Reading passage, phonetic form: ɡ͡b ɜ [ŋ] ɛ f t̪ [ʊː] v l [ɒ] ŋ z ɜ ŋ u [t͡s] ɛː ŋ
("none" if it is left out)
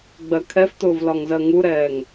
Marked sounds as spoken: kʰ, ʊː, ɒ, ɾ

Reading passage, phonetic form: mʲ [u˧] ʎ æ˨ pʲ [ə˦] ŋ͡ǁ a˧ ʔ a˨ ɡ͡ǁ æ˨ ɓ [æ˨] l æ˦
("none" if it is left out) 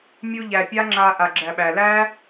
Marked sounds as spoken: u˧, a˦, æ˨

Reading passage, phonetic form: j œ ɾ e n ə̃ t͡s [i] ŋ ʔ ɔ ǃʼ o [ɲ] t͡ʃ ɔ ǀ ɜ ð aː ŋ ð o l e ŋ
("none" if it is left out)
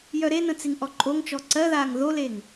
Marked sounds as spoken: i, ŋ

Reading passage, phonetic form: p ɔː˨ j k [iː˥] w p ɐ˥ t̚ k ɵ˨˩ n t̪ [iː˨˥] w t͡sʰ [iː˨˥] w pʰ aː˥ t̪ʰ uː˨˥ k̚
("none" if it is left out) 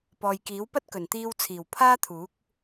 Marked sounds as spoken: iː˨˥, iː˧, iː˨˩

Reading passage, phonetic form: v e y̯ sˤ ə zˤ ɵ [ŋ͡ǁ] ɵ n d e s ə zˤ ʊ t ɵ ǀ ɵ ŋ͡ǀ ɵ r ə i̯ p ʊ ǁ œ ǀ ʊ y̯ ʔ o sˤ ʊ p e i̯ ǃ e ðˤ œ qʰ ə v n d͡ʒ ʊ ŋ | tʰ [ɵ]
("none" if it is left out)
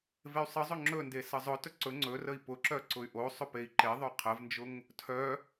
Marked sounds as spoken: ŋ͡ǁ, œ

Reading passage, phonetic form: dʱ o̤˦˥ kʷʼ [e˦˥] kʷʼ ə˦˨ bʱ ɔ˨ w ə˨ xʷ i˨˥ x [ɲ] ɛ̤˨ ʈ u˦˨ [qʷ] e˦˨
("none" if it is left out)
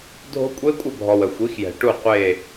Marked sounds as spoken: e˦˥, j, qʷ

